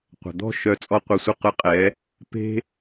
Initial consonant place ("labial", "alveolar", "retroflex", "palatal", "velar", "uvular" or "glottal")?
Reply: uvular